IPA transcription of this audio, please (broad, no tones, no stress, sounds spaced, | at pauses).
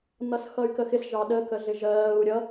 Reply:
n̪ ʌ s x ʌ y̯ k ə x ɪ s ʒ ɑ ɗ ə k ə ɮ ɪ ʒ ɜː u̯ ɾʲ ʌ